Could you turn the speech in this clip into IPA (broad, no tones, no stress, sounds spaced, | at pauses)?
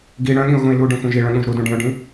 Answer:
ɡ i ɽ œ̃ ɠ ĩ ʊ̯ ɣ ũ ɪ̯ l u ɖ ĩ xʷ ɛ̃ ʒ i ɭ œ̃ ɠ ũ ʒ ɾ u d ũ ɖ ĩ ʊ̯ ɖ ĩ